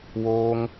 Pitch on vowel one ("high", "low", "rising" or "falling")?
high